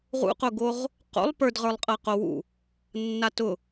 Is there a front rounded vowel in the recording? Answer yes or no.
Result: no